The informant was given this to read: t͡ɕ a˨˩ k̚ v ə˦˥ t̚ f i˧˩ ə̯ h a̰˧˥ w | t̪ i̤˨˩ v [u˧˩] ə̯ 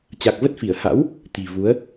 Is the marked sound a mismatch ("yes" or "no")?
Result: yes